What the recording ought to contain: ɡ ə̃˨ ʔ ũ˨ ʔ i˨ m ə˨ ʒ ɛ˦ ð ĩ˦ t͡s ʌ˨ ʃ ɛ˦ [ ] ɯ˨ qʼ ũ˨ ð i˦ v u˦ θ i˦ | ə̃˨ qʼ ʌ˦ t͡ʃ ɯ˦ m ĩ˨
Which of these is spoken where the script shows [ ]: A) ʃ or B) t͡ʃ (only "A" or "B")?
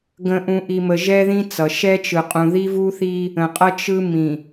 B